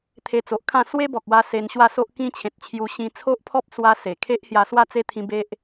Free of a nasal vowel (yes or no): no